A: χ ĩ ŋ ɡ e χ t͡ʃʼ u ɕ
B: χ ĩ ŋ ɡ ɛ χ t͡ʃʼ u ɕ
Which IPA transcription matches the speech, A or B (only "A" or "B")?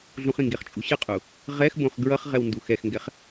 A